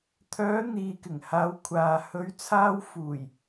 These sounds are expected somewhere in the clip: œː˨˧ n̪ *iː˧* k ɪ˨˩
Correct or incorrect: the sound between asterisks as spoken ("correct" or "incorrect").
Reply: incorrect